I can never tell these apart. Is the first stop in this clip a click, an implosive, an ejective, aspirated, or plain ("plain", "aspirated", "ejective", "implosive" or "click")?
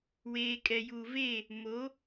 ejective